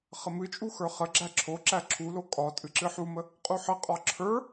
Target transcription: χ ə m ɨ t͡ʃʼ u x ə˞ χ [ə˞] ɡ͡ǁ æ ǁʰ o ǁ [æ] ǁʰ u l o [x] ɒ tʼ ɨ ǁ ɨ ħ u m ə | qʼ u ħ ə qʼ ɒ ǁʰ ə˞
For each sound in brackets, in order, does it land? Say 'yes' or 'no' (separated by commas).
no, yes, no